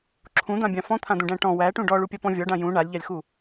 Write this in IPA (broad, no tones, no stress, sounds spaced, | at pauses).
ǁʰ ũ d̪ ã bʲ ã f ɔ̃ t̪ʰ ã d̪ ũ ɖ æ̃ ʈ ɔ̃ w æ ʈ ũ ɖ ɔ ɭ u pʲ a p ɔ̃ vʲ ɔ ɖ ã j ũ ɳ a lʲ ʎ a lʲ x u